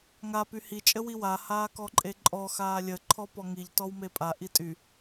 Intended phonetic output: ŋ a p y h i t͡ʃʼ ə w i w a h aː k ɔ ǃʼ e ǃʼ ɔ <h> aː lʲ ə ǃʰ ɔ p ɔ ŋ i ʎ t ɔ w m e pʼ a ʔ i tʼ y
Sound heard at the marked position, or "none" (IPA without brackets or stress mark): x